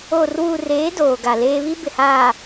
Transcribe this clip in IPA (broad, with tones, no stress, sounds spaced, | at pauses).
oː˨ r w uː˨ r eː˨˦ d oː˨ ɡ a˨ l eː˦ β i˦ b ɪ˨ h aː˨